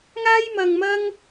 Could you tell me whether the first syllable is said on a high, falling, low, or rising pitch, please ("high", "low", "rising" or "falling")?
high